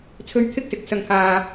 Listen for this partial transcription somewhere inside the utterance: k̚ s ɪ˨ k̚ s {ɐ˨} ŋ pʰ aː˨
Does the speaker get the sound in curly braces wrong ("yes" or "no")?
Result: no